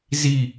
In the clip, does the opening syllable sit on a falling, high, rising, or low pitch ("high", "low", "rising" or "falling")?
falling